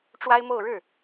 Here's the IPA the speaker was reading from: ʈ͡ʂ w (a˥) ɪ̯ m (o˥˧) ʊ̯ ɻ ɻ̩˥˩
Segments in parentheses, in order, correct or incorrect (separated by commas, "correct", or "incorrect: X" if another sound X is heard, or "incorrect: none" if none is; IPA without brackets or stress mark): correct, correct